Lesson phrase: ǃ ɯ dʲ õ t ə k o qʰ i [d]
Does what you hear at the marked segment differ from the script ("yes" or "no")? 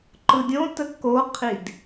no